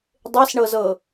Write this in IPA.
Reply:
dˤ e s ɳ ɤ z ɤ

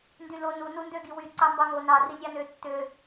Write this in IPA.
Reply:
n d y l o n u n u n d ø ɡ i w y ǀ ɑ m b ɑ ŋ o n ɑ r i nʲ ɑ n ø tː ø

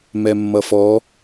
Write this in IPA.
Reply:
m ɛ mː ʌ f ɔ

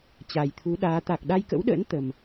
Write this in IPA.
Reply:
t͡ɕ a˨˩ j t̪ʰ u˨˦ ɗ aː˨˦ t̪ a˨˩ k̚ ɗ a˧ j k ə̰˧˥ w ɗ ə̰ː˧˥ n t̪ ə˨˩ m

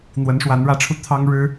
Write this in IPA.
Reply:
n̪ w ə˨˦ n ʂ w a˨˦ n ɻ ä˨˦ ʈ͡ʂʰ u˧ t̪ʰ ɑ˦ ŋ ɻ ɻ̩˦

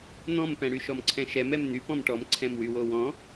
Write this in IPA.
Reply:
n̪ ɔ̃ m p ɛ̃ ɽ y ʃ ɔ m ǀʰ ɛ̃ ʃ ɛ m ɛ m n̪ y p ɔ̃ m ʈ ɔ m ǀʰ ɛ̃ m w y w o w ɔ̃

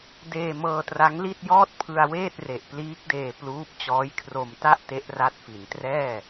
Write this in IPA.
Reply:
d eː˧ m ɤː˧ t r a˦˥ ŋ l i˥˩ t̚ j ɔː˥˩ t̚ pʰ ɯ˧ a̯ w eː˥˩ t̚ r e˨˩ ʔ p l iː˦˥ k̚ d eː˧ p l uː˦˥ p̚ t͡ɕ ɔː˦˥ j kʰ r o˧ m t a˥˩ ʔ t e˦˥ ʔ r a˦˥ t̚ f i˩˦ n t r ɛː˥˩

